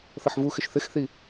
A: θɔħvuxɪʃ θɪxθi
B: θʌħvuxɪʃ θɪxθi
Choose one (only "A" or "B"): B